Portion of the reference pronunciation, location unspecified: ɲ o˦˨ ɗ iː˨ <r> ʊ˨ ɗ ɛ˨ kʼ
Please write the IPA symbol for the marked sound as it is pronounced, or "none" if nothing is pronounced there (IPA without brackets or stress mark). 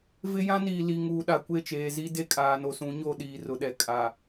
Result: r